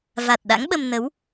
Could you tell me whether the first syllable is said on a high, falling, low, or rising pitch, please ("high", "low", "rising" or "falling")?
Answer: low